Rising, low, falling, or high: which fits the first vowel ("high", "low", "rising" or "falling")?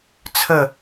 falling